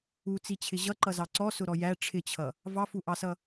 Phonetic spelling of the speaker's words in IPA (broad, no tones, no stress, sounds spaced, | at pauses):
u t͡s i t͡ɕʰ ɪ ʑ ʌ ǃ ʌ z ɑ ǀ ɔ s ʊ ɾ ɔ j æ ʈ͡ʂʰ ɪ t͡ɕʰ ʌ | v ɑ f u ʔ ɑ s ʌ